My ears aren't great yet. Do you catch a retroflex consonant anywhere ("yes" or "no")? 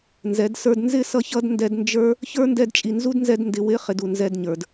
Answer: no